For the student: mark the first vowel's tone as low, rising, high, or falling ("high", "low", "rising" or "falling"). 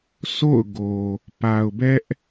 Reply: falling